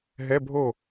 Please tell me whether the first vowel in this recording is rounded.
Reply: no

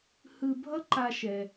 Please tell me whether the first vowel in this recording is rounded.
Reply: no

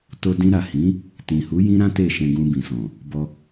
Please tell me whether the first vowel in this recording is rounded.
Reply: yes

